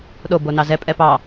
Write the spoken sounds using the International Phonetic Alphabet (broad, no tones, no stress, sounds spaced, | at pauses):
ɗ o b o n ɑ z ɛ pʼ ɛ p ɑ